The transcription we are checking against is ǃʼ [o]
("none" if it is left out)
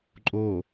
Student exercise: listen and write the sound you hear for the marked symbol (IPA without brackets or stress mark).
o